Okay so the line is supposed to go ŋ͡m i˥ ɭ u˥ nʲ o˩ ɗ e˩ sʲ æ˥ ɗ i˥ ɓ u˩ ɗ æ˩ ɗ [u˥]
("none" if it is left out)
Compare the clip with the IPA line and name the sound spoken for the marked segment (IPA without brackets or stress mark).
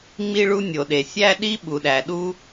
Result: u˥